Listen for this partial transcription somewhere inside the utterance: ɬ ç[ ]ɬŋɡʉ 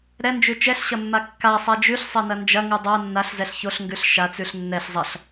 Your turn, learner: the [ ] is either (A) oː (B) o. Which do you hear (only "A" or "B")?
B